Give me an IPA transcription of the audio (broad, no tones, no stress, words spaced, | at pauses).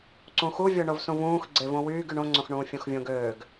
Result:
ǀũxuvʲo ɳovsũvũːx ɡ͡ǀevõwyːɡ yɳõŋ͡ǀõxɳũː fʲõxvʲõɡøːɡ